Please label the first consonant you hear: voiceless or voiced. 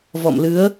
voiced